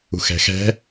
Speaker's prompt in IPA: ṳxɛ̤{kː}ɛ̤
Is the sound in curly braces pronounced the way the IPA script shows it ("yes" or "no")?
no